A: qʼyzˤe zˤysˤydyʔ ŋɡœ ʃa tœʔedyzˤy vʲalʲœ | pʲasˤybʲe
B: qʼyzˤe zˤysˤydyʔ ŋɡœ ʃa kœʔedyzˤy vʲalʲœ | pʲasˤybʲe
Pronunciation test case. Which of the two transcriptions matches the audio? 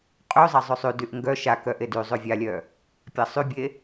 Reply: B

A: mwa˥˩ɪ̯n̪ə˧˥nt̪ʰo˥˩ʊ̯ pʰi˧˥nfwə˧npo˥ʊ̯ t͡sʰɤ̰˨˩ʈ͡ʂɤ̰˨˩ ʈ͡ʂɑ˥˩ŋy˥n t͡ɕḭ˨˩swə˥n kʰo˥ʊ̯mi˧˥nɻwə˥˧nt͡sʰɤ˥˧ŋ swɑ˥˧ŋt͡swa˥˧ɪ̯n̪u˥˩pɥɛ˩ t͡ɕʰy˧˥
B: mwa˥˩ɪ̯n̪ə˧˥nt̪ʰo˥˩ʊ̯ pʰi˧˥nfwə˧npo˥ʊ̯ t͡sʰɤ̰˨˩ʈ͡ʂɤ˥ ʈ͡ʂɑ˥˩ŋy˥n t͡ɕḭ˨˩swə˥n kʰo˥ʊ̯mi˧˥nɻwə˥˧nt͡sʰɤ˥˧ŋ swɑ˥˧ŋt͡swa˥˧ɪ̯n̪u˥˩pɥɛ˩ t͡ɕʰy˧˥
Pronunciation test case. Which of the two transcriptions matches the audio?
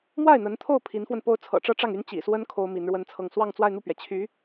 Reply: B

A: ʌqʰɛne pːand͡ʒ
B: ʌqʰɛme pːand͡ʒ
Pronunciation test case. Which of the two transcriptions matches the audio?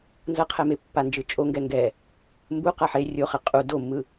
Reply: B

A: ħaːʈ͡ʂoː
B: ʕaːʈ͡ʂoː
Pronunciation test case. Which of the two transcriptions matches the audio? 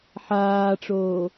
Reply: A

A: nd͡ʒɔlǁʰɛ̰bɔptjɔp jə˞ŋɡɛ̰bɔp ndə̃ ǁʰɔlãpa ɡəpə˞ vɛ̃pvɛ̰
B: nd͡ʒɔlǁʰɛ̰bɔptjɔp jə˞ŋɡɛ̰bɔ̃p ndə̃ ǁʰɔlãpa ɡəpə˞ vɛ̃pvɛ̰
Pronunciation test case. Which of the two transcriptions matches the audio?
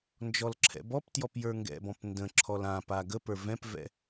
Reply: B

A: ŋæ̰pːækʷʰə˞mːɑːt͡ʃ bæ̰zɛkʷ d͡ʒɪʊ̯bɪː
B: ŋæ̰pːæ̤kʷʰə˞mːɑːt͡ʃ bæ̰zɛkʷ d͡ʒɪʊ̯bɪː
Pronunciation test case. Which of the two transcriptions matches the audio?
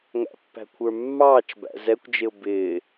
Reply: B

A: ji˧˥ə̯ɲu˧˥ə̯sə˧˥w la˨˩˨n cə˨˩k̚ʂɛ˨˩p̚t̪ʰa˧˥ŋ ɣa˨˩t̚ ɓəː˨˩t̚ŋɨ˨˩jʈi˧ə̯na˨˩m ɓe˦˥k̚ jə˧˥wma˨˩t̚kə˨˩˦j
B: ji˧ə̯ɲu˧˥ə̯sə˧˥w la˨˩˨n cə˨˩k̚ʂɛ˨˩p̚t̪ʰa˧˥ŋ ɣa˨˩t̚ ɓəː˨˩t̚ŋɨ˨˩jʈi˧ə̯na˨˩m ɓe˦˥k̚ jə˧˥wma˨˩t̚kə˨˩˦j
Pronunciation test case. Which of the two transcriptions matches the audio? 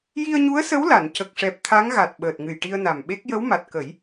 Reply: B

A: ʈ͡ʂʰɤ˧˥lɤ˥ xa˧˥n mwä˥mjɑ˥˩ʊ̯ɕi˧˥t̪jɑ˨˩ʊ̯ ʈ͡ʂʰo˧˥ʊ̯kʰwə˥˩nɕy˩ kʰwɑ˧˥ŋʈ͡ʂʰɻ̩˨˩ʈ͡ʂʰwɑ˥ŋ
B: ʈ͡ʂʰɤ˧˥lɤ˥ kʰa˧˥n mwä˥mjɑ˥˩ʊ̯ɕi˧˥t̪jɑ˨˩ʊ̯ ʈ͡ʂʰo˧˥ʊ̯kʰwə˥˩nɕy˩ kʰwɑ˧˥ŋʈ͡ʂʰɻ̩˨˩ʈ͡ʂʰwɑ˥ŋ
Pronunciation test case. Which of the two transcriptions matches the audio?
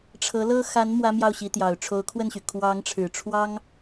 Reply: A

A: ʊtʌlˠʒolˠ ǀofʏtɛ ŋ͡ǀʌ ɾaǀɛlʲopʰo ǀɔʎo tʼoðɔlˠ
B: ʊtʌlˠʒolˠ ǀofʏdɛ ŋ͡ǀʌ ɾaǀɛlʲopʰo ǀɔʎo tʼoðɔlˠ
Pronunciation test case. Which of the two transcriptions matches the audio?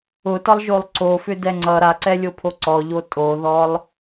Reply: B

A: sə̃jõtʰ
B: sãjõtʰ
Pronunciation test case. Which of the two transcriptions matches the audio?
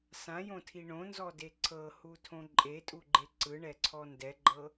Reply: B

